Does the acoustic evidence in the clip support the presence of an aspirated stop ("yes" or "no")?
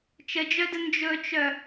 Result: no